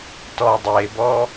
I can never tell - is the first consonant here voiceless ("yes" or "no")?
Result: yes